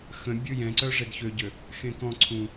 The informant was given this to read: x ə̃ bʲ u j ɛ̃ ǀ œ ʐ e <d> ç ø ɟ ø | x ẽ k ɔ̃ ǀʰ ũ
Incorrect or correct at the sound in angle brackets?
correct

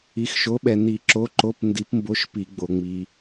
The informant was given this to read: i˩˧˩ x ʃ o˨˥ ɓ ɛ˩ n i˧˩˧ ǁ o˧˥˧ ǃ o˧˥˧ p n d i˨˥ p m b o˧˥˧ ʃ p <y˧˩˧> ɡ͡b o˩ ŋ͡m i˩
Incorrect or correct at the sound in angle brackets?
incorrect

